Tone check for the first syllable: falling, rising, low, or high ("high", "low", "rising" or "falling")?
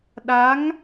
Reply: rising